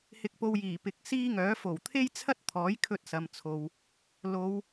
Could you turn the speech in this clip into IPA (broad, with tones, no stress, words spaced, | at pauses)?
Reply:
hɪ˧k̚po˧wjiː˨˩pɪ˨˥k̚ siː˥ŋœː˨˥ fo˨˩wt̪ʰe˥jt͡sʰɐ˥t̚t̪ʰɔː˨˥j kʰɵ˧t̚sɐ˨mt͡sʰo˨w | lo˨˧w